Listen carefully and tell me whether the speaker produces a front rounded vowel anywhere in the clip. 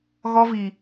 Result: no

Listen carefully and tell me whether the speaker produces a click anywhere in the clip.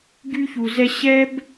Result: no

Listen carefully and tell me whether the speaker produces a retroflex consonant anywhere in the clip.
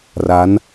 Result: no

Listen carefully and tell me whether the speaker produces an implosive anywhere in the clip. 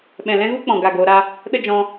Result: yes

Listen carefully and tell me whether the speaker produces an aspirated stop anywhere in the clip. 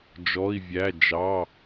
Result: no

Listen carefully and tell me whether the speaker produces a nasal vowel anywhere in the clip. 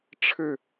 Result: no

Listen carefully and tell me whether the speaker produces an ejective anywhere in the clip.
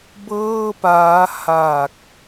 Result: no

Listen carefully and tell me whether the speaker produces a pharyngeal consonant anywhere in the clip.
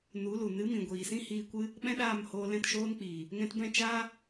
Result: no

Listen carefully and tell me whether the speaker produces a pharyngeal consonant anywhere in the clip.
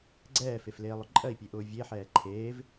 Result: yes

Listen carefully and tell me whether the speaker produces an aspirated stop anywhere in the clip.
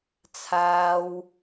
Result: yes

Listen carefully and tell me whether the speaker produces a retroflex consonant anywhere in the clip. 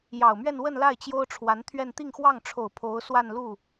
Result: yes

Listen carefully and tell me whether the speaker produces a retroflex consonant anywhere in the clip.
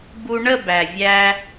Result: yes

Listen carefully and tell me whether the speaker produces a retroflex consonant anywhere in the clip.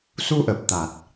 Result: no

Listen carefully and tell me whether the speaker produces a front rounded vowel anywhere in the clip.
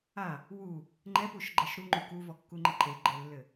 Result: no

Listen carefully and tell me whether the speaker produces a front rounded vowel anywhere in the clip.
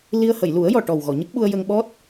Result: no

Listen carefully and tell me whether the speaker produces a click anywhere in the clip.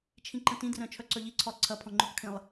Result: yes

